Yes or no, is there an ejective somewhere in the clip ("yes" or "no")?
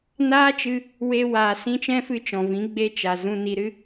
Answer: no